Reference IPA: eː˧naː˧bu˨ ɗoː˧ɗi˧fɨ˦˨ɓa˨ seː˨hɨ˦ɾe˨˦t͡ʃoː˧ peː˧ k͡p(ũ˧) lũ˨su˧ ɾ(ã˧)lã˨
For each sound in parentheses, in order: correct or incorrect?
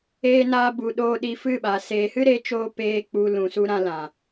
incorrect: u˧, correct

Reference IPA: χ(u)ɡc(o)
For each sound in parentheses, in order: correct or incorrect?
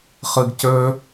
incorrect: ɯ, incorrect: ɵ

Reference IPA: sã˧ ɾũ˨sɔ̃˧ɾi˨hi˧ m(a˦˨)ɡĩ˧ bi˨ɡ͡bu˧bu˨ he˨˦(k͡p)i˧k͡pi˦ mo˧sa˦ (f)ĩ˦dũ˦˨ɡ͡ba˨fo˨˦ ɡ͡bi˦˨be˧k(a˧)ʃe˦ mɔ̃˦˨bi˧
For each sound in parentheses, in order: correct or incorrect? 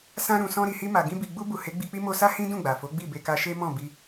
incorrect: a˨, incorrect: ɡ͡b, incorrect: h, correct

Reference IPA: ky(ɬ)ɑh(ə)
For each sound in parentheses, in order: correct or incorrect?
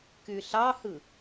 correct, incorrect: ɯ

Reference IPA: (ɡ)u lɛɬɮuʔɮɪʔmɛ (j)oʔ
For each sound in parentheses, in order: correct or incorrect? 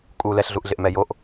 incorrect: kʼ, correct

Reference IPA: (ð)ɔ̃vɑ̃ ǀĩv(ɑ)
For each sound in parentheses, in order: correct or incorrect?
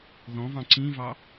correct, correct

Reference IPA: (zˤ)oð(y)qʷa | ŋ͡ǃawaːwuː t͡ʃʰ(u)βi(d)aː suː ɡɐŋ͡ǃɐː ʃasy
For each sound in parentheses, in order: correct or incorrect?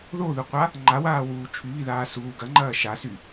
incorrect: ð, incorrect: u, incorrect: y, incorrect: ð

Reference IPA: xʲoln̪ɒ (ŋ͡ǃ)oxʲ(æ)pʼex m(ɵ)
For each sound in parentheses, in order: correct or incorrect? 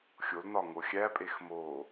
incorrect: ŋ, correct, incorrect: o

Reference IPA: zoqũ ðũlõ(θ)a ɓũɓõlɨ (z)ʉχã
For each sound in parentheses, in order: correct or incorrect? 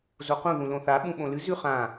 correct, correct

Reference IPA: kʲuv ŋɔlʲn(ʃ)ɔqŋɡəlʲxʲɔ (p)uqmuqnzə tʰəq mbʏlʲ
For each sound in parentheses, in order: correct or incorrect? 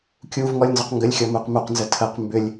incorrect: z, incorrect: m

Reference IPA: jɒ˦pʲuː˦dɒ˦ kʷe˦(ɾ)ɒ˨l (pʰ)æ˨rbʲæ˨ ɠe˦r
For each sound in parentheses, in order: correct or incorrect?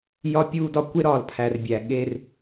correct, correct

